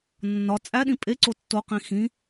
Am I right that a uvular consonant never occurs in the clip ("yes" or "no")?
no